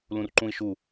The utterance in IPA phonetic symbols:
l ũ r ǃ ũ i̯ ʃ u

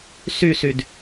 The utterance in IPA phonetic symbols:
s y s y d

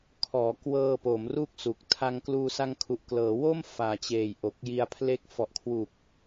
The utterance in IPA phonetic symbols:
kʰ ɔː˩˦ k w ɤː˧ p o˩˦ m r u˥˩ k̚ s u˨˩ k̚ tʰ a˧ ŋ k l uː˧ s a˧ ŋ kʰ u˨˩ ʔ k l ɤː˩˦ w o˥˩ m f aː˨˩ t͡ɕ eː˨˩ j ʔ o˨˩ k̚ j i˧ a̯ pʰ l e˦˥ k̚ f ɔ˨˩ ʔ kʰ w u˨˩ k̚

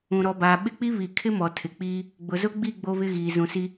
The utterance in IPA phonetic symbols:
ũ˨ ɾ ɔ˨ b aː˨ ɓ ɪ˦ k͡p i˦ β i˨ kʰ ɪ˦ m ɔ˨ tʰ ɪ˨ k͡p iː˦ | ɡ͡b ʊ˨ z ʊ˦ ɡ͡b i˦˨ ɡ͡b o˦ β ɪ˦ ɣ iː˨ z ũ˨ s i˦

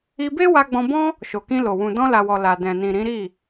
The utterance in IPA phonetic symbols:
i˧ b e˦ w a˧ ɡ͡b ɔ̃˧ b ɔ̃˦ | ʃ o˨ k ĩ˧ l o˨ w ũ˨ d ɔ̃˧ l a˨ w ɔ˨ l a˨ d ɛ̃˨ n ĩ˨ ɾ ĩ˨˦ ɾ i˦˨

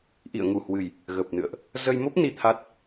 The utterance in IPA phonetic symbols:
ʔ ḭ˧˨ ə̯ ŋ u˧˩ h w ɨ˨˩ j | ɣ ə˨˩ p̚ n ɨ̰˧˨ ə̯ ʔ | z ə˧ j m o˦˥ p̚ n i˧ t̪ʰ a˦˥ t̚

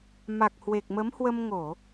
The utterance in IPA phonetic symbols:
m a˨˩ k̚ h w e˨˩ k̚ m ə˨˦ m h w ə˧ m ŋ o˧˩˨

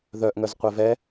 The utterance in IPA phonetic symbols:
ð œ ʔ ŋ œ z qʷ ɛ v ɛ

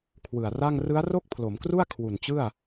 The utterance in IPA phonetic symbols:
kʰ w ɯ˨˩ a̯ r a˥˩ ŋ r ɯ˦˥ a̯ r o˥˩ k̚ pʰ l o˩˦ m k r u˥˩ a̯ kʰ w u˨˩ n t͡ɕ ɯ˥˩ a̯

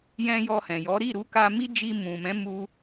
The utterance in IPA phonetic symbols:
j ɛ̃˧ j ɔ˧ h ɛ̃˨ j ɔ˨˦ ɾ i˦˨ ɾ u˧ k a˧ m i˦ d͡ʒ i˧ m ũ˨ m ɛ̃˨˦ m u˧

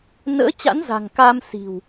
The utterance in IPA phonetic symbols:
n ə̰ː˧˥ t͡ɕ a̰˧˥ n z a̤˨˩ ŋ k a˧ m s i̤˨˩ w

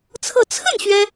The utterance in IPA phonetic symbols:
t͡sʰ ɤ˥˧ t͡sʰ ə˥˩ n ɕ ɥ ɛ˥

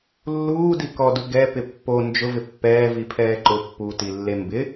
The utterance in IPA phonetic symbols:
lː uː d i k ɔ d u ɡ ɛ p ɪ pː o n d͡ʒ ʊ v ɪ pː ɛː v i pʰ ɛː ǃ ʊ pː u t i lː e m b ɪ

